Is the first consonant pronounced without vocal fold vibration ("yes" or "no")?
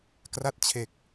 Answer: yes